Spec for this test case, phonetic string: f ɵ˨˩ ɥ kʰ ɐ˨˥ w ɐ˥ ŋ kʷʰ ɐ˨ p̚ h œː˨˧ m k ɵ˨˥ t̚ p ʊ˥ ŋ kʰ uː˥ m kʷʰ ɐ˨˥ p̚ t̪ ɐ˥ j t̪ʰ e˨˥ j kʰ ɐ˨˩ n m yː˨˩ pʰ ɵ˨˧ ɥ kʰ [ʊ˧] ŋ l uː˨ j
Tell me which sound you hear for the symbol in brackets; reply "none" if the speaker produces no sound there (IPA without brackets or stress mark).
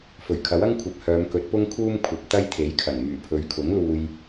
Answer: ʊ˨˥